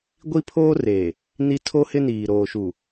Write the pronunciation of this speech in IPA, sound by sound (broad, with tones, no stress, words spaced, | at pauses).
ɡʷi˦pʰoː˦reː˨ | ni˦ tʰo˦hɪ˦niː˨ ɾoː˨ʃu˨